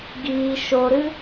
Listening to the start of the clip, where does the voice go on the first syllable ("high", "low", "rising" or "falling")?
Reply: low